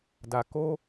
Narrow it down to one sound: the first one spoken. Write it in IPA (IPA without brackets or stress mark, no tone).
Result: d